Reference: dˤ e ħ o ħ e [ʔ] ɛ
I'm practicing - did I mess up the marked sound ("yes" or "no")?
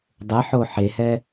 yes